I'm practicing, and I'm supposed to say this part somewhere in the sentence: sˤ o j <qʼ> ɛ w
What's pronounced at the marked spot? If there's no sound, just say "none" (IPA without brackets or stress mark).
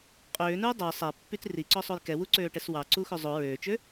k